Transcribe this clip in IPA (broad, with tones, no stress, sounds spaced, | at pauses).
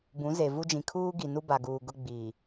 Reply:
b ũ˨˦ z e˨ v u˦ d͡ʒ ĩ˨ kʰ uː˦ ɡ i˨ n u˦ b a˨ ɡ uː˨ ɡ ʊ˦ ɡ͡b iː˨